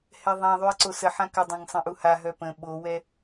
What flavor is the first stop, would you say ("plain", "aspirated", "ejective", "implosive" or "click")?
click